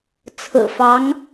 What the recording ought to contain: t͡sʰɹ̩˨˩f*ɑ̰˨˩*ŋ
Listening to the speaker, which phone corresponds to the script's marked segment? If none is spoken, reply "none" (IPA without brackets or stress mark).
ɑ˧˥